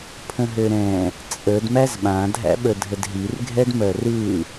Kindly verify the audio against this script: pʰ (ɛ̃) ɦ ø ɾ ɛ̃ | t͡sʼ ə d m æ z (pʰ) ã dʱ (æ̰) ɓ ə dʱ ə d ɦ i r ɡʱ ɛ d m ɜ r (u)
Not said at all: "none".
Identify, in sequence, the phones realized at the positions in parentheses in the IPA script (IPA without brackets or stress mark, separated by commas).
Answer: ə̃, ɓ, æ̰, ɯ